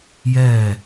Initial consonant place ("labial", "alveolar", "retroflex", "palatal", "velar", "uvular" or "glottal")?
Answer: palatal